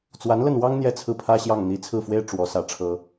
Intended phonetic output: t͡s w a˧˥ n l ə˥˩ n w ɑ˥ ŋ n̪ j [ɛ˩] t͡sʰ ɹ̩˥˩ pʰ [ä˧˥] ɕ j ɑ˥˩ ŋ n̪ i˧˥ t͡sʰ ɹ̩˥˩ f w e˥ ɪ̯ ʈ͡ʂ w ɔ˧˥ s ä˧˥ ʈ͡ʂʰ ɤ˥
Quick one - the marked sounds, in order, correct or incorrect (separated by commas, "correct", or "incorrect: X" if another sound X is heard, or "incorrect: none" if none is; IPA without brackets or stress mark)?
incorrect: ɛ˥˧, incorrect: ä˥